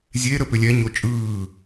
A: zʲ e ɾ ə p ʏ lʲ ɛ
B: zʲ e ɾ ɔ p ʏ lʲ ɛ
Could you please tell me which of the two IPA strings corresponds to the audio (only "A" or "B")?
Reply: A